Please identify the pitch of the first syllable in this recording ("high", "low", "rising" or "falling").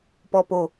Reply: low